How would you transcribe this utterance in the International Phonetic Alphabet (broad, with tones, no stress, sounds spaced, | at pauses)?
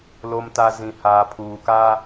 l o˨ m t a˨ z ĩ˨ h aː˨ pʰ uː˨ k a˦